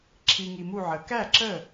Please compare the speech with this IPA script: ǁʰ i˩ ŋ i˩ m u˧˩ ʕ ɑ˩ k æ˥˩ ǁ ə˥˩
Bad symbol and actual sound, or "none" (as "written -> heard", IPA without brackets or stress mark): ɑ˩ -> ə˩